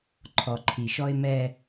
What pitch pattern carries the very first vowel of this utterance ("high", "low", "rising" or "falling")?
low